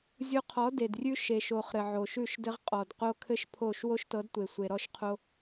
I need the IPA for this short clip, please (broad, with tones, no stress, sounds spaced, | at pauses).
zʲ o˧ qʰ ɔ˨˦ d e˨ d rʲ ʉ˦ ʃ e˨ ʃ o˨ χ ɾ ɘ˨ ʕ o˨ ʃ ʉ˦˨ ʃ d ɘ˦ ʁ qʼ ɔ˨ d q o˦ kʰ ɘ˦ ʃ pʰ o˦˨ ʃ w o˦ ʃ t ɤ˨˦ d tʷ e˨ sʷ e˨ ɾ ɔ˦ ʃ qʰ o˦